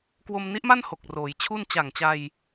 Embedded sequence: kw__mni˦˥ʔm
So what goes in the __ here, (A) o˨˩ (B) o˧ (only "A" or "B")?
B